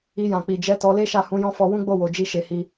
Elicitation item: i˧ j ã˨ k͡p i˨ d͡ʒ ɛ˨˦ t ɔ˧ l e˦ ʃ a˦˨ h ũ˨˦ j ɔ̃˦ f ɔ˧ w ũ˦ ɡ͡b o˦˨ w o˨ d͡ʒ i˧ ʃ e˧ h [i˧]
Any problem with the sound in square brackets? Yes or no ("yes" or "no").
no